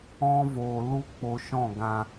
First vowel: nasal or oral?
nasal